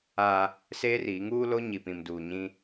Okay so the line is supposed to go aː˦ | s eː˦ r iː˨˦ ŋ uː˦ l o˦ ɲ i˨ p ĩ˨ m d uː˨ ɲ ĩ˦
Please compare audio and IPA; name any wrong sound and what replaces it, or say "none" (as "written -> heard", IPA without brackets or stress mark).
none